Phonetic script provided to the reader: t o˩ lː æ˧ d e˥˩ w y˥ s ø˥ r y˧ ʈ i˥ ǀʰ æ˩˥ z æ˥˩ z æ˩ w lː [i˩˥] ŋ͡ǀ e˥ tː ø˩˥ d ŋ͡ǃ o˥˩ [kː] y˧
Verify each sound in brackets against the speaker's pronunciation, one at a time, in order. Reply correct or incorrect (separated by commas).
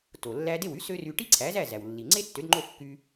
incorrect, correct